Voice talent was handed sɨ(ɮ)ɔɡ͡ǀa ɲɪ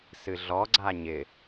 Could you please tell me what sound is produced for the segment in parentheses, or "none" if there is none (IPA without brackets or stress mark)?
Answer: ɮ